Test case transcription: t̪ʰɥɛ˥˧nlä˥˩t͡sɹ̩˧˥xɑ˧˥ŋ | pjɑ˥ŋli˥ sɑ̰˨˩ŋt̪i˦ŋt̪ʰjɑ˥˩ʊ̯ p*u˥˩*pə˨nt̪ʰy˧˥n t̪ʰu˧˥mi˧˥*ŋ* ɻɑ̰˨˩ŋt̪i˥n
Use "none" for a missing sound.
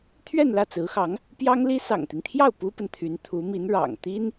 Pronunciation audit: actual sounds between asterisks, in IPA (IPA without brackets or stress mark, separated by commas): u˥, n